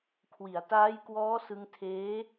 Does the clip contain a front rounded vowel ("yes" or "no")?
no